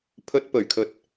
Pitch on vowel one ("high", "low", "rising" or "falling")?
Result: low